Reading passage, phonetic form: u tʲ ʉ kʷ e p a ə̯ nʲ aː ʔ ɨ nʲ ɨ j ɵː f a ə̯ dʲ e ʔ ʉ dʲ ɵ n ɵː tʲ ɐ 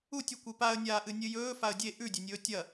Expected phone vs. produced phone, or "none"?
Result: n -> nʲ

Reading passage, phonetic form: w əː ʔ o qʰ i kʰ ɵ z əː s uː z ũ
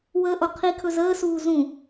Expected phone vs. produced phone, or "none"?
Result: none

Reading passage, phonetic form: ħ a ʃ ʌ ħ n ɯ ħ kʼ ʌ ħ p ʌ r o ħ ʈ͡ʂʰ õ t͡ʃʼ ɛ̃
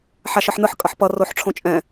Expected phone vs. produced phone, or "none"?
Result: none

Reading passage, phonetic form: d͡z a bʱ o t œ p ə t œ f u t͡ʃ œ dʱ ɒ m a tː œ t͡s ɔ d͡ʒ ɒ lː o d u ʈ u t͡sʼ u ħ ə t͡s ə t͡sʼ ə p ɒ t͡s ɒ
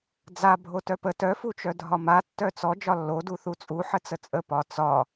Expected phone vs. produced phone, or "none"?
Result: ʈ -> θ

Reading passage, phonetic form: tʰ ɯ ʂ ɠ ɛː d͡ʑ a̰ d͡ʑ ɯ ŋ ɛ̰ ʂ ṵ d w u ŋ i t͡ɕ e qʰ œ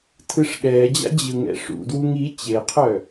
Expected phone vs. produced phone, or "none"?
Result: none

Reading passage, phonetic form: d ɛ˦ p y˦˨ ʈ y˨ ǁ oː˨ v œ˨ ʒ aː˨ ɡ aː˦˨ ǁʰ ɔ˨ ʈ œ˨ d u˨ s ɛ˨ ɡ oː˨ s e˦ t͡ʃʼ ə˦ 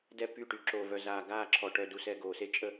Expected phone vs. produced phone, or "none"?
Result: ʒ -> z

